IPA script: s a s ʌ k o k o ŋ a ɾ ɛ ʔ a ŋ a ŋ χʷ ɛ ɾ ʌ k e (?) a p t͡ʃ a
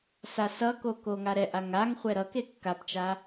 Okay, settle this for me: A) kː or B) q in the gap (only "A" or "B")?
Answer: A